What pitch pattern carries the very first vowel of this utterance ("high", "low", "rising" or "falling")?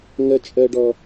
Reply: high